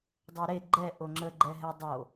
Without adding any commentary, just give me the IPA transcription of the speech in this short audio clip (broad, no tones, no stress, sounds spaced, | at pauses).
dˤ e ɾ e ɡ͡ǃ ɛ ʔ o ŋ͡ǁ ə ɡ͡ǃ ɛ ɦ ɛ dˤ o